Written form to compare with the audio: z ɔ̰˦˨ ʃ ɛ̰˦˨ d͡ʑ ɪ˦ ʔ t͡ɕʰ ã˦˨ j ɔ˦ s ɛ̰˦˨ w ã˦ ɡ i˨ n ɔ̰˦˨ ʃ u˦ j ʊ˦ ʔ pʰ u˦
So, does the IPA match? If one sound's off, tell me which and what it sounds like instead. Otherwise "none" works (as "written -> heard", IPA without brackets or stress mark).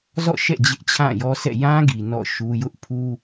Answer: w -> j